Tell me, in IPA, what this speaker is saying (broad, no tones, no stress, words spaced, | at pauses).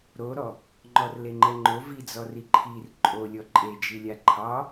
ɾoɾɔ | ŋ͡ǃɔrleŋ͡ǃɛŋ͡ǃo vid͡zɔri ǃʰir ǃʼolʲɔ ǃʼed͡ʒilʲa ǃʰɑ